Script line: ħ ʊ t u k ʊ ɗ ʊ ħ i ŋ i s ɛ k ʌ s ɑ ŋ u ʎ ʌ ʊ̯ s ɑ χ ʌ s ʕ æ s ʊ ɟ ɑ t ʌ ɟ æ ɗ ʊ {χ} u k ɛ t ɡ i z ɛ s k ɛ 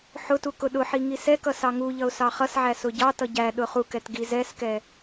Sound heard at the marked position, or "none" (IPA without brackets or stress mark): χ